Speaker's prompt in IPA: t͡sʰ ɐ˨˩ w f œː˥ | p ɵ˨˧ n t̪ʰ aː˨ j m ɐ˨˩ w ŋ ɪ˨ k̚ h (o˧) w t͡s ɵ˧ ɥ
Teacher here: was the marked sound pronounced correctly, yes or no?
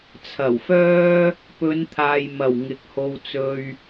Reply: yes